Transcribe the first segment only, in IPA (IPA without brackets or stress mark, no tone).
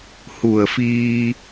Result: h